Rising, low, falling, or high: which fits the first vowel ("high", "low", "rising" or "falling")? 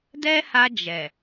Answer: high